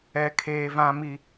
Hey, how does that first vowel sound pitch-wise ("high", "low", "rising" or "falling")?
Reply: low